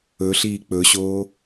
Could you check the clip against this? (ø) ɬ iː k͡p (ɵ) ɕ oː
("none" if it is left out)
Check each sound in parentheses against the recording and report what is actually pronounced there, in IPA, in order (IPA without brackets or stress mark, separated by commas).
ɵ, ɵ